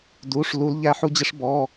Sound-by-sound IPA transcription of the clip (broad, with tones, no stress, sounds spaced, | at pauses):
d u˧˥˧ ʂ l u˦˥ l ʎ æ˦˥ ħ u˦˥ d͡ʑ ɪ˦˥ ʂ b ɔ˧˥˧